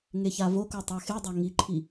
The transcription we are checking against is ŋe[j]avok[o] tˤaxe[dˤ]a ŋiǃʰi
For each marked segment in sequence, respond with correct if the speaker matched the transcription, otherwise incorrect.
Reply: incorrect, correct, correct

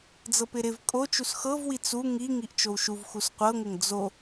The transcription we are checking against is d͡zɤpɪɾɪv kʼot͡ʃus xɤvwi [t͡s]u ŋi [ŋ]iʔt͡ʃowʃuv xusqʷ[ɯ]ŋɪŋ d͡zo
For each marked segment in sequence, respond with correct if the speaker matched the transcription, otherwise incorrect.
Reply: correct, correct, incorrect

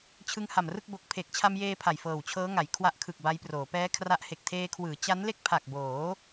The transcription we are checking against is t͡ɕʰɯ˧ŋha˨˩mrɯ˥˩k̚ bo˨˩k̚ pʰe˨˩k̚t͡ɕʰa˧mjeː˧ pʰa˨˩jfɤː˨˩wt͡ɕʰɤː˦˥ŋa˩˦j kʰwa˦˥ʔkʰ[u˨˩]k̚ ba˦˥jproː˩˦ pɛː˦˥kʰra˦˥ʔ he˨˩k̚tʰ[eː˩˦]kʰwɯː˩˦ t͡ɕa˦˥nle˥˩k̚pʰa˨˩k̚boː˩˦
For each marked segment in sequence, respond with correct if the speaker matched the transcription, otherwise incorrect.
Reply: incorrect, incorrect

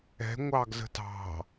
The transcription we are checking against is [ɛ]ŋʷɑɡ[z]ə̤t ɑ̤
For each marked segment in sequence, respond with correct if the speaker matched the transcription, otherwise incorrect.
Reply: incorrect, correct

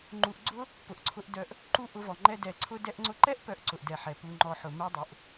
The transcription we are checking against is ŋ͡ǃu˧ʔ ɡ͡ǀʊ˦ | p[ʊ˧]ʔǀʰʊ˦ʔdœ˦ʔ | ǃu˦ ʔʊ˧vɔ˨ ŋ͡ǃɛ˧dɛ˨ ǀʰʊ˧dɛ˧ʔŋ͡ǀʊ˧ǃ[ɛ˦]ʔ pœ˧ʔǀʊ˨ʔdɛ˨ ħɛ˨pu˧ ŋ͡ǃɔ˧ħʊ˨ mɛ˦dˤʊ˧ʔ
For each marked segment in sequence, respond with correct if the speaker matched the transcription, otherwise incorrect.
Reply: correct, correct

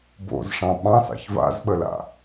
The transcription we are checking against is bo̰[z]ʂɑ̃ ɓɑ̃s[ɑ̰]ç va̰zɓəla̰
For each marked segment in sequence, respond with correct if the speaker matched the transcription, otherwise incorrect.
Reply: correct, correct

